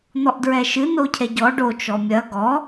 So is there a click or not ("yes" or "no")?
no